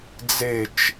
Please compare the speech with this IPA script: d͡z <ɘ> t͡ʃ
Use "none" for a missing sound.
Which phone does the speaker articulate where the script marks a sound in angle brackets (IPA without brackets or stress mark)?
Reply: e